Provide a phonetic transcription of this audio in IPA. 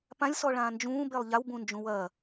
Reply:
p ã lʲ s ɔ ɭ ãː n d͡ʒ ũː b e lˠ ʎ a w b ũ n d͡ʒ ũ w ɐ

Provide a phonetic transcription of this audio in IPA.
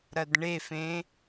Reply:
ɾ ɐ d ɳ e f ẽ

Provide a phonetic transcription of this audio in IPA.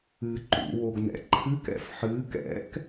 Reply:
ɨ ǃ ṵ w o ɡ n ɛ̰ ǃʰ ɨ k ɛ̰ f ħ ɨː k ɛ̰ k

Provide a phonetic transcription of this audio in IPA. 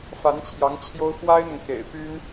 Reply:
f a˧˥ n t͡ɕʰ j ɑ˧˥ ŋ t͡ɕʰ j o˥ ʊ̯ x w a˥ ɪ̯ n̪ ʊ˨ ŋ x ḛ˨˩ ɪ̯ p y˥ n

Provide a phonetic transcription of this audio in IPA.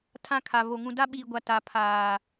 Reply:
tʰ ã˦ kʰ a˨ β o˨ ŋ ũ˨ d a˦ ɓ iː˨ ɡʷ a˨ t a˨ pʰ aː˨

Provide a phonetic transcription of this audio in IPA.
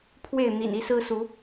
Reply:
pʰ w e˥˨ ɪ̯ n̪ ḭ˨˩ n i˥˨ s ɹ̩˦ s u˨˦

